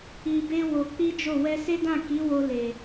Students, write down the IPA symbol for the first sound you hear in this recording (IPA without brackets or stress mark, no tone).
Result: i